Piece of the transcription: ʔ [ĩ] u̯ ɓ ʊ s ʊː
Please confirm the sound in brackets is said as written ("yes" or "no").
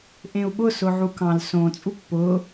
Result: no